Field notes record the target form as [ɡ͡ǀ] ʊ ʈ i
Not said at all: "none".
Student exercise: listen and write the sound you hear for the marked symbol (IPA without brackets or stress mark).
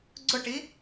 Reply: ɡ͡ǀ